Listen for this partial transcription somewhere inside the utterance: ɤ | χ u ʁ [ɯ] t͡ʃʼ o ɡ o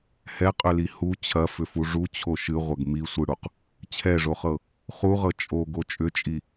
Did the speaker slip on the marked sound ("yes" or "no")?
yes